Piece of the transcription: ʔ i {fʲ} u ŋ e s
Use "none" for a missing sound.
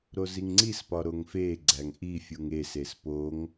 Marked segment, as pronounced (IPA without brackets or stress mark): fʲ